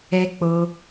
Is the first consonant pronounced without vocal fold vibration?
yes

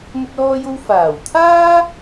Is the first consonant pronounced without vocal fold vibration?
no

